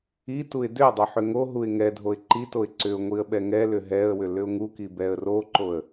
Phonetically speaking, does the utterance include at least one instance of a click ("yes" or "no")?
yes